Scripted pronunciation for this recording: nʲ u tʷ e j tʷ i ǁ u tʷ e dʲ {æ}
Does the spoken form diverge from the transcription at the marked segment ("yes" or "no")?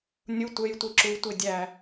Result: no